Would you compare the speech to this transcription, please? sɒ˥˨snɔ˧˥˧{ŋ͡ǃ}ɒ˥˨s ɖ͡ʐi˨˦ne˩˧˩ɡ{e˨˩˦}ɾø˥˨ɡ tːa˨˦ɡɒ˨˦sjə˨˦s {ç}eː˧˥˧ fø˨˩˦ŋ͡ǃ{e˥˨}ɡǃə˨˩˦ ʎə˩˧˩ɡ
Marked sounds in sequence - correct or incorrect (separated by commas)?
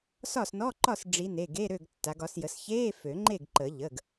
incorrect, incorrect, correct, correct